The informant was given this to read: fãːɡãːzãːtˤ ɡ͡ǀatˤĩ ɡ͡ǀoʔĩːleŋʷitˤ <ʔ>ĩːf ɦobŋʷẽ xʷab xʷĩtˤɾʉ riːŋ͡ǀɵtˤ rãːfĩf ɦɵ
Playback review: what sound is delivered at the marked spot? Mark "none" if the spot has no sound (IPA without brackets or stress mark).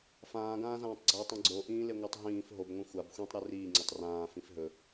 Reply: ɦ